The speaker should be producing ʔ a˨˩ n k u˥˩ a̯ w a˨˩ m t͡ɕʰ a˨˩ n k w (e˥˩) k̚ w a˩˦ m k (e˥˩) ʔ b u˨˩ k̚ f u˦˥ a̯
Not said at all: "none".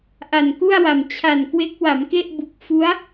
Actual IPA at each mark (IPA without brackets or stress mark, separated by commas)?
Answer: e˦˥, e˥˩